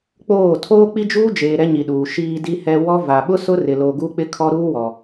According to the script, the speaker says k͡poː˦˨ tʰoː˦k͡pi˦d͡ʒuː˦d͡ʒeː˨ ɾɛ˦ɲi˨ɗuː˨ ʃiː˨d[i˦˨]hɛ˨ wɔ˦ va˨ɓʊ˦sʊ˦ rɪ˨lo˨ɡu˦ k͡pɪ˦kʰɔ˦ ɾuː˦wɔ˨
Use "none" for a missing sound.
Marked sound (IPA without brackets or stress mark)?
i˨